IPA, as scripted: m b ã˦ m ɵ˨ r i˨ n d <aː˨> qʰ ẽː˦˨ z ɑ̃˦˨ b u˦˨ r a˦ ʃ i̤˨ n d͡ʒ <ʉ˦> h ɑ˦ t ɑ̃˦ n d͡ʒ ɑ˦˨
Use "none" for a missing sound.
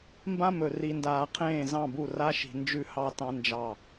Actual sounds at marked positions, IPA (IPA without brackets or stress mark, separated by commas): aː˨, ʉ˦